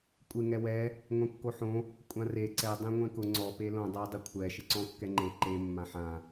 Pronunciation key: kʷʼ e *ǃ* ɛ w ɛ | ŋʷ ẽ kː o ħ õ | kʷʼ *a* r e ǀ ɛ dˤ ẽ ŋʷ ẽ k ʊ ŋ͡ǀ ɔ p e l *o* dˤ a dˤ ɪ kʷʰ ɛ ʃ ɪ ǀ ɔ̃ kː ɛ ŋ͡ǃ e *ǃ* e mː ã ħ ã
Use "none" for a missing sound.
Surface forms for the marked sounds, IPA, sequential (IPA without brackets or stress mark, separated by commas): ŋ, ã, õ, ǃ